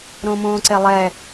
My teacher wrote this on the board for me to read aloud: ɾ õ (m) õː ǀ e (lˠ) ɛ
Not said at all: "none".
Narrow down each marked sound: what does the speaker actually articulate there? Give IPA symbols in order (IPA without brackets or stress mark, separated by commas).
m, lˠ